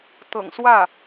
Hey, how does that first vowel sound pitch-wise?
low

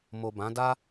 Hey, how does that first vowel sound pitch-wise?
low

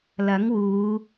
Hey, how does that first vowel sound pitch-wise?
rising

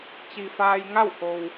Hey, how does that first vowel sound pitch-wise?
low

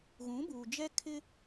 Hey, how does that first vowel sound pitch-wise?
rising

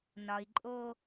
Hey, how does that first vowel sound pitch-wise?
low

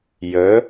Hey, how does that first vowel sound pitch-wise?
rising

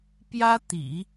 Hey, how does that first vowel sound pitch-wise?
high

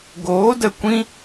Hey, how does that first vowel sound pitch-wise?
rising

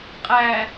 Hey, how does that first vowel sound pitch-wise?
low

